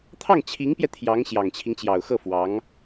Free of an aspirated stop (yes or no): no